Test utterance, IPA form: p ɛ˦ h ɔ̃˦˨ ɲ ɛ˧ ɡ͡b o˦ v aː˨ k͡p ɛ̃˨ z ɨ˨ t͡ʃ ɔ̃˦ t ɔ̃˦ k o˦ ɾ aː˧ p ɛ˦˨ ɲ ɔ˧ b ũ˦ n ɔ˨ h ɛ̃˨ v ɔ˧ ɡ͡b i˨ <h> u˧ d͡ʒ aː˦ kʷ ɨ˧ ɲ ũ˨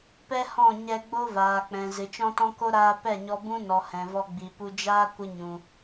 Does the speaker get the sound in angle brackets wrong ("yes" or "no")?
yes